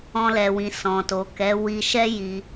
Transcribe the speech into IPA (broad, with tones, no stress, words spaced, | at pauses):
ɔ̃˧lɛ˨wĩ˨ sɔ̃˨to˨ kɛ˨˦ wi˧ʃɛ˦ ji˧